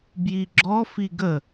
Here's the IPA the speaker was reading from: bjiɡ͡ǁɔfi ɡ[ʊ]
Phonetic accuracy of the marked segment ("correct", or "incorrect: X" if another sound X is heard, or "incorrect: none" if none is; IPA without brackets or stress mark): incorrect: ə